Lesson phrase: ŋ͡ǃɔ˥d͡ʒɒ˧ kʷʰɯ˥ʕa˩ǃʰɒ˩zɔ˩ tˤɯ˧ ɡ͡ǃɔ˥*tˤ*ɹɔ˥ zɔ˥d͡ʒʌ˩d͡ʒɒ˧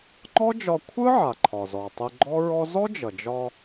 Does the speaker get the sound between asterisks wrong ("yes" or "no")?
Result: yes